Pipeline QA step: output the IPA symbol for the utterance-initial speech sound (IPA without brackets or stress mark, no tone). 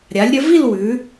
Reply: ɾʲ